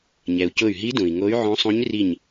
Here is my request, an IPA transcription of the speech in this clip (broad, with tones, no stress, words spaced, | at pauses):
ɲɛ˩u̯cʊ˧˩y̯ɦi˧˥ dũ˩i̯ŋo˧˥y̯ ʕõ˧˥sˤũ˧˥ɲ ri˧˩ɲ